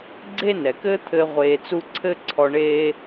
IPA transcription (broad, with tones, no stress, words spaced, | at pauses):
ɡ͡ǀe˥nɛ˩kɘː˥t̪ʰɘː˧ ʁʷeː˧t͡su˥ ǀʰɘ˥ ǀʰɔ˧ɳeː˥